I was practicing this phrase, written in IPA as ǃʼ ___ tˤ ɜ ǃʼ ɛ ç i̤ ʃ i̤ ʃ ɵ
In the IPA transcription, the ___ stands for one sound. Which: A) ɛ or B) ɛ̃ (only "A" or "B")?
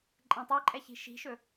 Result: B